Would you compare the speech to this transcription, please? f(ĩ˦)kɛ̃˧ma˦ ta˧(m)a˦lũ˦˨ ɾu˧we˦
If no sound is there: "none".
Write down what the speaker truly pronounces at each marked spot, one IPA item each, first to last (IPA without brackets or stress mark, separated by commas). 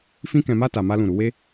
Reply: ĩ˦, m